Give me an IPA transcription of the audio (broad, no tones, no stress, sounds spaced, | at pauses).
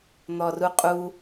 n̪ ɔ r u qʼ u